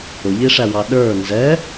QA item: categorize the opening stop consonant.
implosive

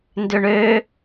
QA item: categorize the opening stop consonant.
plain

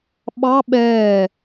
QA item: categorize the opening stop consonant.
implosive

